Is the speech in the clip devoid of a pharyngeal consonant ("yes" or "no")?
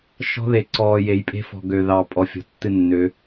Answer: yes